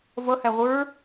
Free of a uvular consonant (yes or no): no